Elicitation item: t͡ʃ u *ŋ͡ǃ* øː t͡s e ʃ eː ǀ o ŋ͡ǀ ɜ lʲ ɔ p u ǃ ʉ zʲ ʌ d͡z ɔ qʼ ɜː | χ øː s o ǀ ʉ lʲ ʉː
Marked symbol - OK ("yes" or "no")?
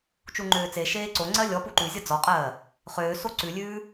yes